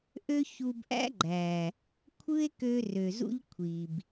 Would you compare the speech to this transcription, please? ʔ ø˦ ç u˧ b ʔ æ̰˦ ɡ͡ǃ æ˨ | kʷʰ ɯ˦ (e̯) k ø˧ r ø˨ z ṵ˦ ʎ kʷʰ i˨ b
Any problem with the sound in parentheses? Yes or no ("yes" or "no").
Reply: no